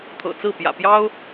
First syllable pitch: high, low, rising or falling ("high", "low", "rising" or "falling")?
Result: low